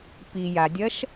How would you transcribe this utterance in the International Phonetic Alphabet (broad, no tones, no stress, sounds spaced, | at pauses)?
p i j a dʲ ɐ ʃ